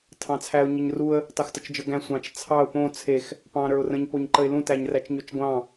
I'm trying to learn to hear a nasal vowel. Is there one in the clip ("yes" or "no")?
yes